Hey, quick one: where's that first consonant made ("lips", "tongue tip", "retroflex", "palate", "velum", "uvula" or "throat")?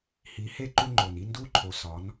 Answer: throat